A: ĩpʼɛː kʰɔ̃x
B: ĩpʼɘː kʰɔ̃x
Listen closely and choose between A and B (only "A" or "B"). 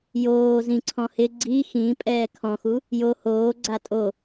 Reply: A